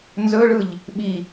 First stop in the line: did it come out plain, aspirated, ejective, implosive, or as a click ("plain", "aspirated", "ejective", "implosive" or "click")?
implosive